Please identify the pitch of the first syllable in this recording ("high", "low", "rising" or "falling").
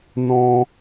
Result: high